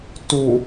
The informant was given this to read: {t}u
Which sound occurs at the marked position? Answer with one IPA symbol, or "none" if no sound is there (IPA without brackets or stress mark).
t